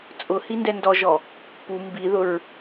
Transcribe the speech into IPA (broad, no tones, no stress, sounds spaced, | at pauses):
t͡sʼ ʊ h i n d ɛ n d ɔ ʒ ɔ | p u m b i ð ʊ ɹ